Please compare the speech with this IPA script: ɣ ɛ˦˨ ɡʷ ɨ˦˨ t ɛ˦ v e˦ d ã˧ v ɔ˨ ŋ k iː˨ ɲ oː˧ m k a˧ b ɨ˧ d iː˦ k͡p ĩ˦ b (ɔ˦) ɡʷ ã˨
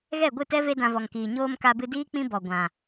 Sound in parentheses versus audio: incorrect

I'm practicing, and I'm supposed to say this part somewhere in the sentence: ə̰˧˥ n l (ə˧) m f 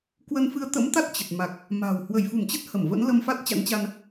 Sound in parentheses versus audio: correct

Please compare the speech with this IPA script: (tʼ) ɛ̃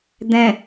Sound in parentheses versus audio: incorrect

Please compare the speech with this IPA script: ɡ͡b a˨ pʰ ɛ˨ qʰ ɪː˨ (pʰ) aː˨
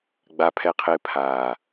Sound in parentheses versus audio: correct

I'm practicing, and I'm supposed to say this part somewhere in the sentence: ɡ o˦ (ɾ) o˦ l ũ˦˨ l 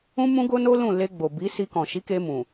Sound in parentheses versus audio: incorrect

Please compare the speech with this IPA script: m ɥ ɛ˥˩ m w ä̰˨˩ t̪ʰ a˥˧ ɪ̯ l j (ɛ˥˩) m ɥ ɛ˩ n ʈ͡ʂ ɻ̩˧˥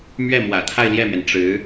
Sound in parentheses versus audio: correct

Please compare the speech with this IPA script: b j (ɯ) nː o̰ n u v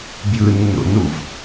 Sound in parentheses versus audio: correct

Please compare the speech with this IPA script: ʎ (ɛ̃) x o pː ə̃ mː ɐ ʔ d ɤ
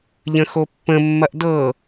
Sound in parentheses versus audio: incorrect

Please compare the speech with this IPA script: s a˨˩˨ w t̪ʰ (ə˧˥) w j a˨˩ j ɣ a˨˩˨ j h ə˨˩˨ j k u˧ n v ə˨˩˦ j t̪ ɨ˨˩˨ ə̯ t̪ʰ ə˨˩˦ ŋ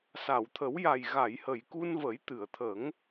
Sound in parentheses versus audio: incorrect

